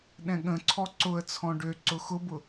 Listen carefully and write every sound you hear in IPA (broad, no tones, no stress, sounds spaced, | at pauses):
ɗ ɛ̃ ɠ ə̃ ǀʰ ɔ ǀ ʊ ə̯ t͡sʰ ɔ̃ ɖ ø ǀ ʊ x ʊ b ʊ